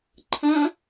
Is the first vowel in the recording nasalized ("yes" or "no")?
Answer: yes